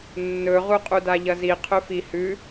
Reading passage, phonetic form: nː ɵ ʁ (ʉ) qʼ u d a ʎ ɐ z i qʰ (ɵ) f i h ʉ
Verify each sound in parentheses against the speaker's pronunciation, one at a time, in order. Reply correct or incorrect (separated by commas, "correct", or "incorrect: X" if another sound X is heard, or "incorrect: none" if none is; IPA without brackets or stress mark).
incorrect: u, correct